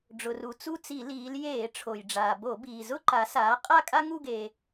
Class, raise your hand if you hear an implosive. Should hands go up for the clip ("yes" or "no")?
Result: no